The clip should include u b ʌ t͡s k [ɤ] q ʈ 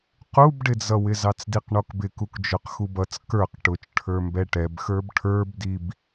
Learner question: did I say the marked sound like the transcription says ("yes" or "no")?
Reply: no